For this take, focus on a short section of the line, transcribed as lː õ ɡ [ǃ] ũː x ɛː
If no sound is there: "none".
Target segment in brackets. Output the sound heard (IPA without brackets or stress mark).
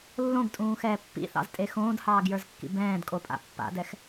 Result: tʼ